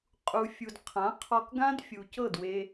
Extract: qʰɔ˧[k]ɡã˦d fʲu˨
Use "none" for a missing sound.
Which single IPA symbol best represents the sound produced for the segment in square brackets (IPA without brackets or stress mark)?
k